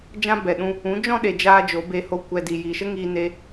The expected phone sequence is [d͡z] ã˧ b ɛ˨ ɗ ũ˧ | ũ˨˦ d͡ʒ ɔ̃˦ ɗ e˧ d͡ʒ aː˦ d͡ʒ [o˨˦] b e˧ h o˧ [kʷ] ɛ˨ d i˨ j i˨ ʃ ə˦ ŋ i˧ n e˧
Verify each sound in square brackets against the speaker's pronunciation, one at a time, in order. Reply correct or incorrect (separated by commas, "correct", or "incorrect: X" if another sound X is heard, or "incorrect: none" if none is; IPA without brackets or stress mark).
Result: incorrect: d͡ʒ, correct, correct